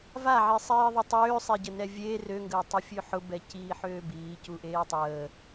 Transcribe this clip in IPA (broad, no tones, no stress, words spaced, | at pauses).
vaʕi sˤiːðˤʊtˤøːsˤe ɟənɛvʲeː røŋɡəːtˤufʲø ħʊbɛciː ħøːbiː cuʔeːtˤəː